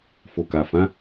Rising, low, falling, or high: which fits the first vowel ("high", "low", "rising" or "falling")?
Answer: low